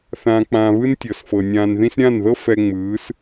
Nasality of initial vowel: nasal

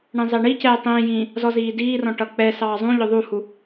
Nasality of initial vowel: nasal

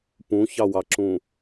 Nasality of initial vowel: nasal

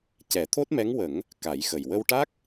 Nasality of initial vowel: oral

